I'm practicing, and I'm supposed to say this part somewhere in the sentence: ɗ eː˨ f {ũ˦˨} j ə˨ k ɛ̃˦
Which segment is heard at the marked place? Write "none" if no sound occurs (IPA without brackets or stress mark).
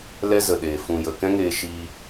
ũ˨